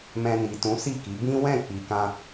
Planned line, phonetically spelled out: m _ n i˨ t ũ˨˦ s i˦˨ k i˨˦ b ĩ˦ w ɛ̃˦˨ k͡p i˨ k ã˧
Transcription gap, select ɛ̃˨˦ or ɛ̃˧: ɛ̃˧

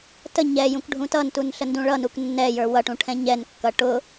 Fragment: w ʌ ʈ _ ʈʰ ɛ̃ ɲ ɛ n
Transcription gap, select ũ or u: ũ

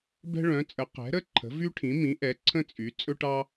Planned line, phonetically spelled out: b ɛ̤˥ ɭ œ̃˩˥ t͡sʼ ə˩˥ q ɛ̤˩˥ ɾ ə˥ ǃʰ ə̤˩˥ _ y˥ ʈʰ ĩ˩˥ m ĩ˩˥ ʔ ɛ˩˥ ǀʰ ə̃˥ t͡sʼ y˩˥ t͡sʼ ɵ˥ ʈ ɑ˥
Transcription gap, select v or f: v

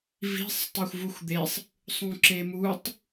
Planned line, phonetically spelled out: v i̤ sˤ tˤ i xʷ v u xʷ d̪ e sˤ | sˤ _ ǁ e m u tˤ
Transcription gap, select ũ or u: ũ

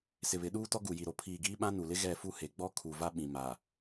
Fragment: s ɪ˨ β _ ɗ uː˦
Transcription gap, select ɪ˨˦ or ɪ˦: ɪ˨˦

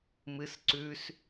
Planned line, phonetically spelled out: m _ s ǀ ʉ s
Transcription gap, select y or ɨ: ɨ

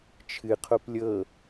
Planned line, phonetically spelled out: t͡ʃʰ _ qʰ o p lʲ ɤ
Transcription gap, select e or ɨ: ɨ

